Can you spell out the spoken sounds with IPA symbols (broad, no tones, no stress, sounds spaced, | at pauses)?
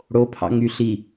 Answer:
ɽ o pʰ ɑ̰ ŋ y ɬ i